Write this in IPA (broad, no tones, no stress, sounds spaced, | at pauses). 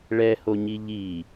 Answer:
ɭ ɛ h o ɲ i ʎ i